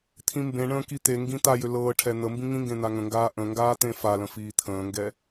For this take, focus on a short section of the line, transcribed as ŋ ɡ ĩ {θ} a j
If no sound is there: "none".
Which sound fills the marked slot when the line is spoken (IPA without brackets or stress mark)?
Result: t̪